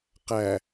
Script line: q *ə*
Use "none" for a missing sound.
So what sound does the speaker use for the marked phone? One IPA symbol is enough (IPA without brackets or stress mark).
æ